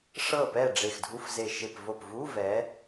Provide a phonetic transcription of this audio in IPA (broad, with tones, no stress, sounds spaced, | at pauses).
ʂ ɤ˥˩ p ɛ˥˩ ɖ͡ʐ e˧˩ x dʱ u˧˥˧ f z e˧˩ ʃ e˧˩ p v o˧˩ p v u˧˥˧ v ɛ˨˦